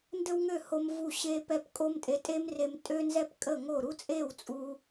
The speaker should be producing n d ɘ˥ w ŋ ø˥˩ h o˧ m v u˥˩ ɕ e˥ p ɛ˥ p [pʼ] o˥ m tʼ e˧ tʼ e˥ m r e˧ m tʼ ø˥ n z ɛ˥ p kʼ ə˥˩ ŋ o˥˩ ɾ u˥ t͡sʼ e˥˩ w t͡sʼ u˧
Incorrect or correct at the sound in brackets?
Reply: incorrect: kʼ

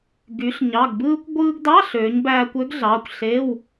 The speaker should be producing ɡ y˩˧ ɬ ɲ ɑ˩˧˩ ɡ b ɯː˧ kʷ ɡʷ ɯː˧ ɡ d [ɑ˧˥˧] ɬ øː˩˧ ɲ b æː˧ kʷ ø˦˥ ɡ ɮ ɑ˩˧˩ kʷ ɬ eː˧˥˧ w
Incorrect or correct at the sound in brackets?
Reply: correct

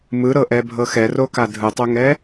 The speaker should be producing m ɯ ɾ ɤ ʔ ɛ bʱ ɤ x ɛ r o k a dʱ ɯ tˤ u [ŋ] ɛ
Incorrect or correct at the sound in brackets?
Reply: correct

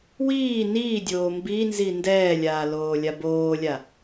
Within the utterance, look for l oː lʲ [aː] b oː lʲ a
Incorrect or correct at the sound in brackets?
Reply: incorrect: a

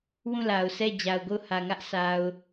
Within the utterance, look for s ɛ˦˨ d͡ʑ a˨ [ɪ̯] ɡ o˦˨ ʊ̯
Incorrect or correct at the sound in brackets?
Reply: incorrect: ʊ̯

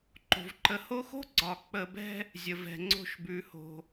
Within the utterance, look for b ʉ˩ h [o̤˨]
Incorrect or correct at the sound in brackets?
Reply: incorrect: o̤˩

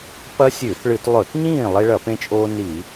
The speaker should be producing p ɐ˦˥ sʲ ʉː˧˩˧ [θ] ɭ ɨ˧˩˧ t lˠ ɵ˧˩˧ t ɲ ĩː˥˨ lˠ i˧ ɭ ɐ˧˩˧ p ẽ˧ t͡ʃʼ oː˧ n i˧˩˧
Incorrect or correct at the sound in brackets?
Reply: correct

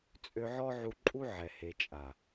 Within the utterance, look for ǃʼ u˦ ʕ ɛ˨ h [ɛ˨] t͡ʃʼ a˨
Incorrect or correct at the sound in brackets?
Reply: incorrect: e˨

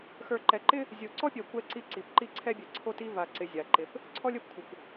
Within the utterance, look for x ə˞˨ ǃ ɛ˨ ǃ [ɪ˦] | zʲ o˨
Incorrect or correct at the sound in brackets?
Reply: correct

